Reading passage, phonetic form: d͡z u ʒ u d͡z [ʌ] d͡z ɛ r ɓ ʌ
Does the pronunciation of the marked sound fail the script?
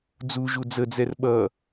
yes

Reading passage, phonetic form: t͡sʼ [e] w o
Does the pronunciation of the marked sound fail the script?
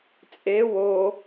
no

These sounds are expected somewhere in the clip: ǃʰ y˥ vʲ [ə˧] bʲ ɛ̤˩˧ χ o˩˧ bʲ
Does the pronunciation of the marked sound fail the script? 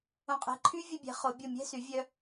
no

